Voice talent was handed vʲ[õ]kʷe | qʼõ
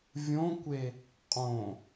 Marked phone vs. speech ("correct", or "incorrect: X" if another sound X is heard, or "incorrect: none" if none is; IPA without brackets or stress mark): correct